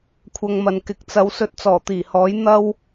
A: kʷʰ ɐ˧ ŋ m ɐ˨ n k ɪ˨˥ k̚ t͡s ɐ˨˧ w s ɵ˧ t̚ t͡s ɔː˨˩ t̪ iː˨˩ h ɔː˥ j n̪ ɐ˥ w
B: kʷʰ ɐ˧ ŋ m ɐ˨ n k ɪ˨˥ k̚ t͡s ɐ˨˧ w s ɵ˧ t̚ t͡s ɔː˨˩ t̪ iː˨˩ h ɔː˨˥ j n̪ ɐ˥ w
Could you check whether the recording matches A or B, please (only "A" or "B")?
B